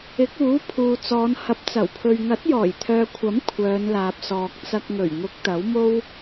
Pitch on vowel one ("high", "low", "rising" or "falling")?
rising